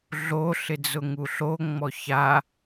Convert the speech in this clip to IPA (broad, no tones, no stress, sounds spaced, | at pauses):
ɮ o ɬ ɪ d͡z ʊ ŋ u ɬ o ŋ͡m ɔ ç a